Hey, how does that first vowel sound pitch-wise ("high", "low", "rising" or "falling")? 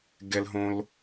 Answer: low